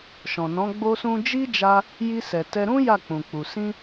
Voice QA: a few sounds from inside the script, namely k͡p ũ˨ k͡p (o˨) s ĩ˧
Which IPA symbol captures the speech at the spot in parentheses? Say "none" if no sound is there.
u˨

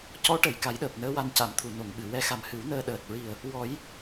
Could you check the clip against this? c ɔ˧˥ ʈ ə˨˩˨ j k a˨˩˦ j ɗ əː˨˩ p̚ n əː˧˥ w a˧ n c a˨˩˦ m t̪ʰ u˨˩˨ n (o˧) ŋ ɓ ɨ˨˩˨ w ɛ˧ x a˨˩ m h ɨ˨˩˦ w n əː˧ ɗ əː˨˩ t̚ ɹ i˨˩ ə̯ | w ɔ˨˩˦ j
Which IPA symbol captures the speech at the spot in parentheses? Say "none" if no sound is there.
o˨˩˨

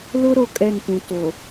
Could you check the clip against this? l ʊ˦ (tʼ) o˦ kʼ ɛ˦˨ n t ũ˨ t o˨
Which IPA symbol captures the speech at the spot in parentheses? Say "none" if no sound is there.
ɾ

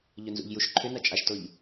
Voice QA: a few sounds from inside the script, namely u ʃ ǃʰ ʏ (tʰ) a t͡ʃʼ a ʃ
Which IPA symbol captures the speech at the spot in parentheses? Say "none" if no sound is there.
n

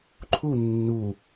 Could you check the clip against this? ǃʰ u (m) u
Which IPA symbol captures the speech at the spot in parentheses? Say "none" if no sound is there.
nː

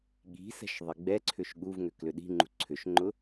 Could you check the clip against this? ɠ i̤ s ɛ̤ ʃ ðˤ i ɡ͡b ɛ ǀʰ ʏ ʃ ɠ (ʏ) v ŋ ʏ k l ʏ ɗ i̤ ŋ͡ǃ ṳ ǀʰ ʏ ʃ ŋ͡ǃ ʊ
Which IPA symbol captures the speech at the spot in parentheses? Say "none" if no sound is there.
u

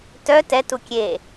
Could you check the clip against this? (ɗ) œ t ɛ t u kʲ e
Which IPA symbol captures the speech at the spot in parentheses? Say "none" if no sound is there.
t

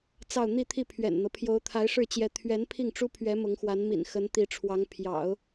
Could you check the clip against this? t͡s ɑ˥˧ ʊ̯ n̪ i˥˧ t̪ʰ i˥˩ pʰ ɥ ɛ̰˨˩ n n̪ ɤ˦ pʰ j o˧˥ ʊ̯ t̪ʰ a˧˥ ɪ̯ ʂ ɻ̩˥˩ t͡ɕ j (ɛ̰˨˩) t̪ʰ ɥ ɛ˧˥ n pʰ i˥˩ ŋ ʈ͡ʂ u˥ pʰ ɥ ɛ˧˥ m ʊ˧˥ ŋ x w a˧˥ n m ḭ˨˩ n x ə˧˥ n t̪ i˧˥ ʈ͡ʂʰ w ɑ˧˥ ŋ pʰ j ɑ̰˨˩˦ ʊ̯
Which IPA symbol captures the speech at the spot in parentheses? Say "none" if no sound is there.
ɛ˧˥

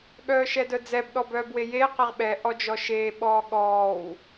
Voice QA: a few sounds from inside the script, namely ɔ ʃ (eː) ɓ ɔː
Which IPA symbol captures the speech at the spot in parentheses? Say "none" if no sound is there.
eː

